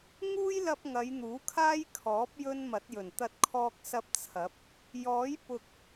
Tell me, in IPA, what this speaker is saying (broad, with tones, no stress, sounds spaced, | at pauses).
ŋ uː˥ j l ɐ˧ p̚ ŋ ɐ˨˧ j n̪ uː˨˥ kʰ aː˥ j kʰ ɔː˨˥ p̚ j ɵ˥ n m ɐ˨˥ t̚ j ɵ˨˩ n t̪ ɐ˧ t̚ kʰ ɔː˧ k̚ s ɐ˧ p̚ t͡sʰ ɐ˨˥ p̚ | j ɔː˨˥ j p ʊ˨ k̚